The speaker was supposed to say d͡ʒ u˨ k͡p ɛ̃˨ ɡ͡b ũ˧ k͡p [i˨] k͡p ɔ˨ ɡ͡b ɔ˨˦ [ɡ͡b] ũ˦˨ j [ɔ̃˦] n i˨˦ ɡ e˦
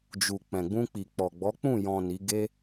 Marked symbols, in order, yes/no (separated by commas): yes, no, no